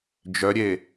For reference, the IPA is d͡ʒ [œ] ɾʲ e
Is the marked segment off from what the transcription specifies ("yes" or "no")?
no